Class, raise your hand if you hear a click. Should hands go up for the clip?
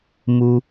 no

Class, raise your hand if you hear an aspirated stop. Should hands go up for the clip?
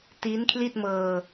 yes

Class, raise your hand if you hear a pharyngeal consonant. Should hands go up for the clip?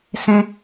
no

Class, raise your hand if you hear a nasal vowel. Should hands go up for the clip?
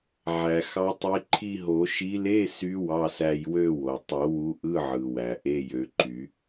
no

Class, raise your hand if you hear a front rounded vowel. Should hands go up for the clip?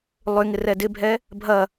yes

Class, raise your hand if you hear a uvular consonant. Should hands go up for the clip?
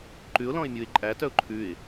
no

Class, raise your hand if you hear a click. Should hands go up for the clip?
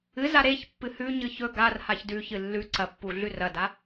yes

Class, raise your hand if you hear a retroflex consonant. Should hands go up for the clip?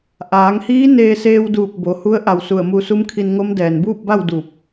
no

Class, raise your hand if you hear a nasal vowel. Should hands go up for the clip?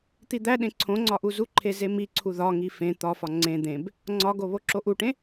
yes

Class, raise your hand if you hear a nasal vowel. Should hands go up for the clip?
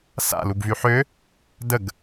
no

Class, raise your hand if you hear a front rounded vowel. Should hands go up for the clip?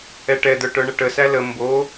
yes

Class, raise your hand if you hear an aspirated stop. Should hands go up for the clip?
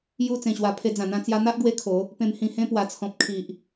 yes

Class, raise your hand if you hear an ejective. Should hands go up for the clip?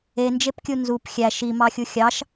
no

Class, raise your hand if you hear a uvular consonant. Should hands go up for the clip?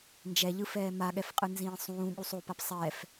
yes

